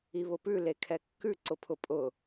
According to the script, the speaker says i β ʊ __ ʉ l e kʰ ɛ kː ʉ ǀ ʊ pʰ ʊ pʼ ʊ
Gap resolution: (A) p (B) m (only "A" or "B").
A